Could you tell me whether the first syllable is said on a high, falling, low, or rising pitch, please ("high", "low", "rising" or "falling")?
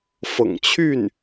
low